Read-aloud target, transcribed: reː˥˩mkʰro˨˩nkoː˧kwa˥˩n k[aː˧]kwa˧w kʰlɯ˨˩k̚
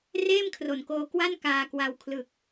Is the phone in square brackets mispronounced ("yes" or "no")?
no